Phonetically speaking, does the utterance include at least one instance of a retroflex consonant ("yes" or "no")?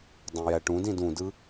yes